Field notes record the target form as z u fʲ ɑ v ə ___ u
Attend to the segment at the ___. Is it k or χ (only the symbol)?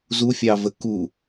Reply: k